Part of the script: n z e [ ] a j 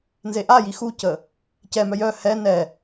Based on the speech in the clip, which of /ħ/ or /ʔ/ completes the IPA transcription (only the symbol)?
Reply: ʔ